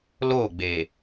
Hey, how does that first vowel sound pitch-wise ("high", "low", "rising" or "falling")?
falling